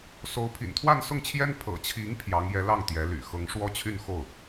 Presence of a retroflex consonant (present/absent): present